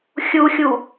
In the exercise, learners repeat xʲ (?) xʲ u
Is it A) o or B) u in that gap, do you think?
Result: B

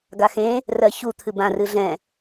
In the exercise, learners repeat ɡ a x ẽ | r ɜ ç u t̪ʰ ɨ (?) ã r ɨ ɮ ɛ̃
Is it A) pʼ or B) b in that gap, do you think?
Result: B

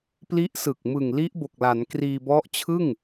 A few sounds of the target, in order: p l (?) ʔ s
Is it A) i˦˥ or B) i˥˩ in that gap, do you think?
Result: A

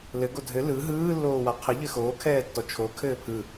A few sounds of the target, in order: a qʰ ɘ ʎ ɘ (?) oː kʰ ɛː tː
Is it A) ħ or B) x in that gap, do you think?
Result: B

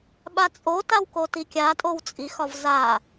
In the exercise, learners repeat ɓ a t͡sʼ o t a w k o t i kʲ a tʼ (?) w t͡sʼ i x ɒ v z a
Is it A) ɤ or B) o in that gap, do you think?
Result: B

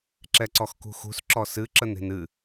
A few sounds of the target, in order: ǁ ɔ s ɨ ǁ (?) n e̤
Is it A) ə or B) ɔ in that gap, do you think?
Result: A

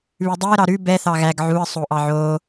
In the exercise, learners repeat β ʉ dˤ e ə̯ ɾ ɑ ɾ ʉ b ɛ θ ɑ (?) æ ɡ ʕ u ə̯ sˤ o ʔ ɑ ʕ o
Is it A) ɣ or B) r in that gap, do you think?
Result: A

